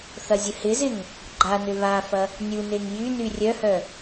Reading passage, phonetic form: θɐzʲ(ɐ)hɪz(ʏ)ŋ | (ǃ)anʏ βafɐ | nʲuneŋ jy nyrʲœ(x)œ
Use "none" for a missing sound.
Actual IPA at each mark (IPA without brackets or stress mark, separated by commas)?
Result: ə, ɪ, ɡ͡ǃ, h